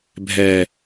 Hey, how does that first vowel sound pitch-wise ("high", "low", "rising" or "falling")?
low